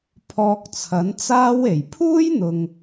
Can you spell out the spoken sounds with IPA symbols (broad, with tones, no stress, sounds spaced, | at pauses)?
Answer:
pʰ ɔː˧ k̚ t͡sʰ ɐ˨˥ n t͡s aː˥ w e˨˩ j pʰ uː˥ j n̪ ʊ˧ ŋ